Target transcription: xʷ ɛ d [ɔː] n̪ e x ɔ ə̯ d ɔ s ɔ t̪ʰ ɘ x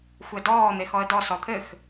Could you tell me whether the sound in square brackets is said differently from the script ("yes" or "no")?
no